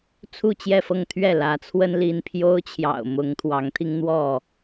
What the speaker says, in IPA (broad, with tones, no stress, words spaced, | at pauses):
t͡sʰu˥˨t͡ɕjɛ˥˨fɤ˥˨ŋ t̪ʰɥɛ˥˨lä˨˦t͡sʰwə˦n li˦n pʰjo˦ʊ̯t͡ɕʰjɑ̰˨˩ʊ̯ mʊ˨˦ŋ t̪ʰwɑ˨˦ŋt̪ʰi˦ŋ n̪wɔ˥˨